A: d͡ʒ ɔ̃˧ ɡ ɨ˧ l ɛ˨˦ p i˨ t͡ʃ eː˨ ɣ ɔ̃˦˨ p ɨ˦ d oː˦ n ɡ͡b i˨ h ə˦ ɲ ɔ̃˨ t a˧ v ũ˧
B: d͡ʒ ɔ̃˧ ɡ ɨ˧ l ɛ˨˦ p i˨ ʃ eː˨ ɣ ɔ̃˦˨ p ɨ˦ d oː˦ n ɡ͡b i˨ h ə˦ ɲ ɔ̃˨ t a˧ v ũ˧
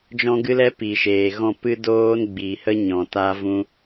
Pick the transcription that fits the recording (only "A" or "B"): B